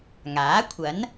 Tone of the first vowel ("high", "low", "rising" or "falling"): rising